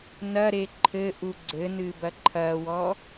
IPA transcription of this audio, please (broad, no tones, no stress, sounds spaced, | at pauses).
n ɐ ɾ e ǃʰ ɘ ʔ u ɡ͡ǀ ɘ n ɨ b ɐ ǃʰ ɐ w ɔ